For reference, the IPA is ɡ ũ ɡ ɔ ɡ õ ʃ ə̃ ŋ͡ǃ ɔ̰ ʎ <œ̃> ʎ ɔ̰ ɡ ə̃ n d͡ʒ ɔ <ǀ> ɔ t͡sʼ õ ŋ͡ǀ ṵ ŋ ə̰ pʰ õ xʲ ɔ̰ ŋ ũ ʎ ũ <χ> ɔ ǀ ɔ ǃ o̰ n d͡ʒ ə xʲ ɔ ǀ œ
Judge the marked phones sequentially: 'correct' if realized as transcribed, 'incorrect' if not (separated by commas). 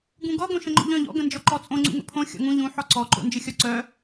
correct, incorrect, incorrect